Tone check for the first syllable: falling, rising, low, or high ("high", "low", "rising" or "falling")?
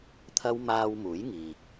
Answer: high